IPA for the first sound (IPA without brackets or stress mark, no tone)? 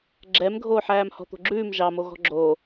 ɡ͡ǁ